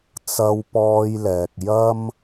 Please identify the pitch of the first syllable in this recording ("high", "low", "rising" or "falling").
high